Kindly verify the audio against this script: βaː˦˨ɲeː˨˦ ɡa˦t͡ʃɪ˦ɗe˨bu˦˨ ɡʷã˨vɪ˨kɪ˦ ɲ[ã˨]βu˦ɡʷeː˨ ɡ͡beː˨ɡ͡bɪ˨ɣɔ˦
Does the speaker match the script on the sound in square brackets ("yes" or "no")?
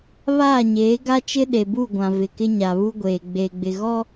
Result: no